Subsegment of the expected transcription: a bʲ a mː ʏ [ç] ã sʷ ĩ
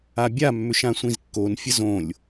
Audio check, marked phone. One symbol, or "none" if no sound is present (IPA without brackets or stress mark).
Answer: ʃ